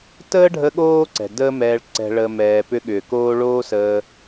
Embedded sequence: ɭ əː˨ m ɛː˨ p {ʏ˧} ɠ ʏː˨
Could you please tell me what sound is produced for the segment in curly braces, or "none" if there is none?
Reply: ʏ˧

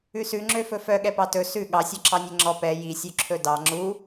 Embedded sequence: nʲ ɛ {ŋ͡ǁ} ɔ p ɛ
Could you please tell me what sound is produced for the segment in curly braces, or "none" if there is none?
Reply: ŋ͡ǁ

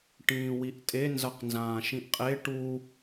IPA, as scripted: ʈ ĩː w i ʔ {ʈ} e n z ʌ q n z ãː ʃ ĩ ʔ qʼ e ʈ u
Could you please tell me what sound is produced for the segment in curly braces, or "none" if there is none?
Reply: tʼ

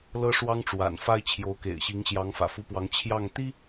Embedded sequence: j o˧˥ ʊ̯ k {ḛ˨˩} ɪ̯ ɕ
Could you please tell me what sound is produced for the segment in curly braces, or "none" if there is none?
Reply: ḛ˨˩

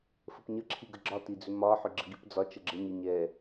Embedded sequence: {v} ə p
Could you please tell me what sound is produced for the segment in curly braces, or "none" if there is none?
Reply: f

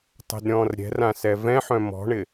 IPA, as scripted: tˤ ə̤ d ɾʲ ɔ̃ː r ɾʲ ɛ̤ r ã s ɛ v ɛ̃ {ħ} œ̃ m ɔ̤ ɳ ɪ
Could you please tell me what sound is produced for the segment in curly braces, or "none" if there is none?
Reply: ħ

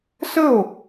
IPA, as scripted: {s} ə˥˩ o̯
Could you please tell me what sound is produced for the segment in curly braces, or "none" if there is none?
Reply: s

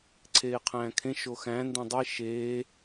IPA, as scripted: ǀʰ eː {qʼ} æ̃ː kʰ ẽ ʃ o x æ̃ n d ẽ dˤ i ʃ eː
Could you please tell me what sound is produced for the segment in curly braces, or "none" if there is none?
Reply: qʰ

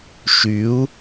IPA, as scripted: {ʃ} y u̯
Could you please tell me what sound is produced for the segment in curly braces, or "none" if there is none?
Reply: ʃ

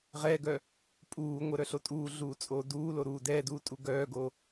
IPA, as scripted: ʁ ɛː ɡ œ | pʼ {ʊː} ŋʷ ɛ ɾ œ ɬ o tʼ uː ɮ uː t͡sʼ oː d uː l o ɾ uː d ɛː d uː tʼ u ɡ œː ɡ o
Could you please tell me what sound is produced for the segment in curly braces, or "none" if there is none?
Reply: uː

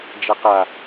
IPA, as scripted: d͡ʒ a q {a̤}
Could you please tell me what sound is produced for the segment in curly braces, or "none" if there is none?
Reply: a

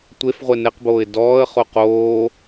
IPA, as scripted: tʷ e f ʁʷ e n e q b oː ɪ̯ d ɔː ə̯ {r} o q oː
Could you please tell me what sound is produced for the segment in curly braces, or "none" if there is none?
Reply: χ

